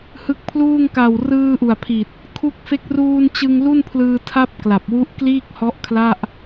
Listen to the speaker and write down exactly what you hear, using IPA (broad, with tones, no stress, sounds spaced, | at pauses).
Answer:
h ɯ˦˥ k̚ pʰ l uː˥˩ ŋ k a˨˩ w r ɯː˧ ʔ u˨˩ a̯ pʰ i˨˩ t̚ | kʰ u˦˥ k̚ f e˦˥ k̚ r uː˧ n t͡ɕ ɯ˧ ŋ l u˥˩ n pʰ l ɯː˧ tʰ a˥˩ p̚ k l a˨˩ p̚ w u˦˥ ʔ k l iː˥˩ k̚ h ɔ˦˥ ʔ kʰ l a˥˩ ʔ